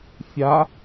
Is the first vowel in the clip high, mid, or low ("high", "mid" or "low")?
low